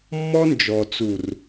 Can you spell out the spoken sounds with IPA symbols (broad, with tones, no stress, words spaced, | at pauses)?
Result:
mːɔ˦nd͡ʒɔ˨t͡su˨r